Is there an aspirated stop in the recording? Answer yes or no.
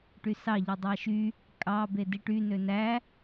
no